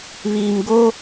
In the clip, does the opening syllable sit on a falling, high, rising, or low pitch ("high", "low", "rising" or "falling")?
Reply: low